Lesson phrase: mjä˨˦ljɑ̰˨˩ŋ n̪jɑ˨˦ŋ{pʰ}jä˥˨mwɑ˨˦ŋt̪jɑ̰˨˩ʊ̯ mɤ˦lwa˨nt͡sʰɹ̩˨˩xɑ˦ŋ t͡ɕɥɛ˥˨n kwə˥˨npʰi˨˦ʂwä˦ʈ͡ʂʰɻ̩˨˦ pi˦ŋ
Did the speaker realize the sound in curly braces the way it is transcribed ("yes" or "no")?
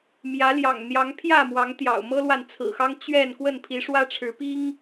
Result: yes